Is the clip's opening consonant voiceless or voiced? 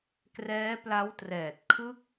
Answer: voiceless